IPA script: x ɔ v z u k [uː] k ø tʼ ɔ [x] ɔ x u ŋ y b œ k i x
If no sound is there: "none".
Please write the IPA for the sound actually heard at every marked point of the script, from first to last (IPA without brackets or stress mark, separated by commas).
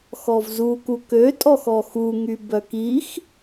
u, x